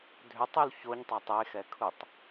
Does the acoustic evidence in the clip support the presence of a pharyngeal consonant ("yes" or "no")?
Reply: no